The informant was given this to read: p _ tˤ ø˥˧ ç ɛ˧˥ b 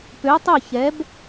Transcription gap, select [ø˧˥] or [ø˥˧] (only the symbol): ø˧˥